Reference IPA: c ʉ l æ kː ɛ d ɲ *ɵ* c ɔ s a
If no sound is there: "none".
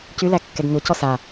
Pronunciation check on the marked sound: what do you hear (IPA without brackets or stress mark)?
o